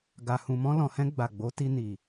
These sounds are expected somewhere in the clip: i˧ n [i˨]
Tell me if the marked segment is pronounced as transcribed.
yes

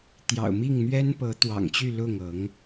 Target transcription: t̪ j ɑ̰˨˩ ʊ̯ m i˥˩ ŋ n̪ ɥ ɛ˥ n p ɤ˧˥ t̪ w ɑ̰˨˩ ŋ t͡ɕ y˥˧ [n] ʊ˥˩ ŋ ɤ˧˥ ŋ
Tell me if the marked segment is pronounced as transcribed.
no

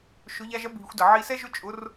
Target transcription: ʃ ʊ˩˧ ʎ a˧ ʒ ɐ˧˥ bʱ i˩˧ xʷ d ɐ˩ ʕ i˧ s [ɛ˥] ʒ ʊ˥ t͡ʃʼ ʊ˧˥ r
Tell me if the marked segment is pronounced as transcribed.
yes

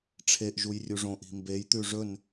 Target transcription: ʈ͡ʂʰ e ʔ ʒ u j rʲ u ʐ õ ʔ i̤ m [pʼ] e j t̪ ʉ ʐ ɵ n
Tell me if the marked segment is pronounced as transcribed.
no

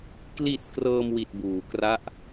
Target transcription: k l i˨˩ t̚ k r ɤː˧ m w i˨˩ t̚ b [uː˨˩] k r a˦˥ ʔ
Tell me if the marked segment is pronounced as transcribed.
no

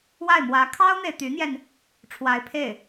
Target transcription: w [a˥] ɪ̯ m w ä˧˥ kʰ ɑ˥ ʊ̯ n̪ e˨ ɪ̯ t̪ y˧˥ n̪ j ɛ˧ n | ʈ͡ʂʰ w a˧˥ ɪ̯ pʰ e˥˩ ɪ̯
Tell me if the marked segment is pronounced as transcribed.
no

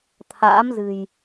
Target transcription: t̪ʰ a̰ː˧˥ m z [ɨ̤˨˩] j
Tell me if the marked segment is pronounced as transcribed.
yes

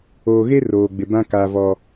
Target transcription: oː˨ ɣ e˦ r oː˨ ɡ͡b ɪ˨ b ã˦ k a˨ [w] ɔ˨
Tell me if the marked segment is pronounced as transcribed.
no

